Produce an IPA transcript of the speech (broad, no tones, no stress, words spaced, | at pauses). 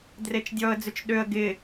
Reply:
dret͡ʃdʲɔə̯d͡zʏt͡ʃ ɗøə̯ ɡɪ